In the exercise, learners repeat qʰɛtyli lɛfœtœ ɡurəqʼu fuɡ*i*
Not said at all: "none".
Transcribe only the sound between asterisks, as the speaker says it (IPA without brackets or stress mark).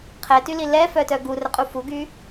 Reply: y